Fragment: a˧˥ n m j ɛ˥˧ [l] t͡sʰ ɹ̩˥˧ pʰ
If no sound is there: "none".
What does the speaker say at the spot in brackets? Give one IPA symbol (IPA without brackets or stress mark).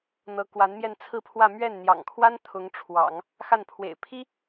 n